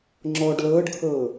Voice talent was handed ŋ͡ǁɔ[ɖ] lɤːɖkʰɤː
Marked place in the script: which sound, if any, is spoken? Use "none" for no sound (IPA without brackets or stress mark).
ɖ